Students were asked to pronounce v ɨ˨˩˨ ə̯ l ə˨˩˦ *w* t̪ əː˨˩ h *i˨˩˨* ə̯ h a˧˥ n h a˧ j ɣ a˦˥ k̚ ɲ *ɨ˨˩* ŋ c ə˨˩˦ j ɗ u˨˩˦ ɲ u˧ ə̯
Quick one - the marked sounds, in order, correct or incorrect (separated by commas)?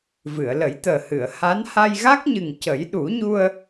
incorrect, incorrect, correct